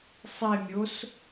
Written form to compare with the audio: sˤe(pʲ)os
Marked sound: incorrect: mʲ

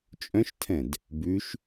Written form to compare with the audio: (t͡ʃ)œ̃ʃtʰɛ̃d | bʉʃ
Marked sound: incorrect: t͡ʃʼ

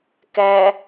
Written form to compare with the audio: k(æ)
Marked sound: correct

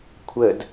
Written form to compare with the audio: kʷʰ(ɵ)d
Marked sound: incorrect: ə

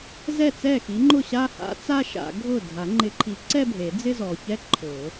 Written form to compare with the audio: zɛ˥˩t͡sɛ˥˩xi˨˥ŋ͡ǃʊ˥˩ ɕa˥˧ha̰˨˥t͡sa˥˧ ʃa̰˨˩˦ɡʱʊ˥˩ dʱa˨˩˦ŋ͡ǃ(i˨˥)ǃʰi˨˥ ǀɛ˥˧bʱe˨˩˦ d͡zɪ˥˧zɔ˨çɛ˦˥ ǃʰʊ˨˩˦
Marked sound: incorrect: ɪ˨˥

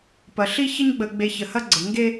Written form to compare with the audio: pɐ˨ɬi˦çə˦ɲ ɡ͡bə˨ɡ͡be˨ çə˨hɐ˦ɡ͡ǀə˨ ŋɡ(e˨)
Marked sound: incorrect: e˦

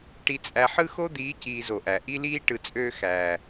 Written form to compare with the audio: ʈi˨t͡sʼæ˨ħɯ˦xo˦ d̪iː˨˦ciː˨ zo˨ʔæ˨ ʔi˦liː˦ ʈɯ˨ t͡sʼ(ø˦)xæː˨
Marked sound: incorrect: øː˦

